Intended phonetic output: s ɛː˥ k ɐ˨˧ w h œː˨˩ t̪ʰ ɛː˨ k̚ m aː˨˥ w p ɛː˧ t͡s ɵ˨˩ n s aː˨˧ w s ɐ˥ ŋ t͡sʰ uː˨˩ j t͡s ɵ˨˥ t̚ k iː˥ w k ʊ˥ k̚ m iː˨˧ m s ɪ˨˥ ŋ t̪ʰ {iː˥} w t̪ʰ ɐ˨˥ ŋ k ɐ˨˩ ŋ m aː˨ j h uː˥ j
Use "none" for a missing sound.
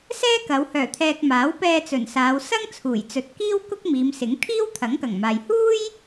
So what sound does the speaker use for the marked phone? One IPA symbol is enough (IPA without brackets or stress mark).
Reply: iː˥